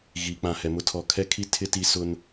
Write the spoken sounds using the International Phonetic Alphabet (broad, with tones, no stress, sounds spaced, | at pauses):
ɣ iː˨ k͡p ã˨ h ɛ˨ m ʊ˦ tʰ ɔ˨ kʰ ɛ˦ kʰ i˦ tʰ ɪ˦ t i˦ s ʊ˦ n